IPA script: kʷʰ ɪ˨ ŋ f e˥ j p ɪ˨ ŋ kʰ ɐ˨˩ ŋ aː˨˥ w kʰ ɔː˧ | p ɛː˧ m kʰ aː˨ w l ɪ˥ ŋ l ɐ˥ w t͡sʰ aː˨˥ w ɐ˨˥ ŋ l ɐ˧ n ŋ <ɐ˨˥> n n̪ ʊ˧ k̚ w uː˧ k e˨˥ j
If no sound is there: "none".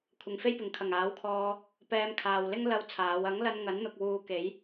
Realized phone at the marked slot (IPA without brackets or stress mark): ɐ˨˥